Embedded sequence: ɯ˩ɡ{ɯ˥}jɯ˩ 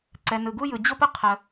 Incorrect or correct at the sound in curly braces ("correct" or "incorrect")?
incorrect